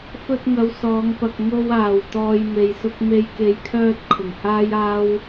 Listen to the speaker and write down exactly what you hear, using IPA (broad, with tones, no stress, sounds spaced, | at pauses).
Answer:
f ɵ˧ t̚ ŋ ɐ˨˧ w s ɔː˨˧ ŋ p ɐ˨ k̚ ŋ o˧ w aː˨˩ w t̪ ɔː˧ j m e˨ j s ʊ˥ k̚ m e˧ j k e˨ j kʰ œː˧ t̚ kʰ ʊ˨˩ ŋ h aː˥ j aː˥ w